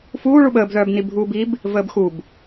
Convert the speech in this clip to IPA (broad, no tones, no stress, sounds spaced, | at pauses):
f uː ɭ u ɓ əː b ð œː b n i bʱ uː b i b | v əː b x u b